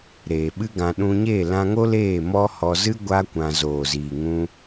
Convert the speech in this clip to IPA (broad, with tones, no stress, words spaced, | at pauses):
ɾeː˨ɓɨ˦ɡã˧ ɗũ˧ɲe˦˨ lã˧ŋo˦ leː˦˨mɔ˦hɔ˧zɨ˦ ɡʷa˦kʷã˧ zoː˨ziː˨ŋũ˧